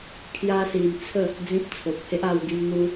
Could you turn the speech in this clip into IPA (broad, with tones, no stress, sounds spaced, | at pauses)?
kʰ j a˦ s i˧ m t͡sʰ ə˥˧ | d͡z ĩ˦ p̚ t͡sʰ o˨ p̚ h e˦ ʔ a˧ w ɡ i˧ m n̪ u˧